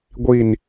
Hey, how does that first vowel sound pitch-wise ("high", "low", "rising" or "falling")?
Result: falling